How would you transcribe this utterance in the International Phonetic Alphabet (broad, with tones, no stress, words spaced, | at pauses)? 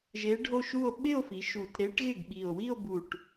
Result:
ʒe˧˥ɖʱo˥˧ʃu˥˧o̯ ɓɪ˥˧o̯fi˩˧ ʃu˨˩t ɾe˧˥ʈɣɪ˥˩ɡɓi˨˩o̯ wi˥˧o̯bu˨˩ʈ